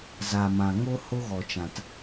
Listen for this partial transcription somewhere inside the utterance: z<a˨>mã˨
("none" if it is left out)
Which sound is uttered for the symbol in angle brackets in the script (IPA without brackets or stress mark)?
a˨